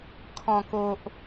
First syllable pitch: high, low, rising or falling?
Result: low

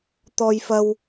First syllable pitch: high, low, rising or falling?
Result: high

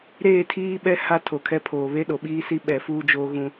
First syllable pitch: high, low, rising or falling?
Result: falling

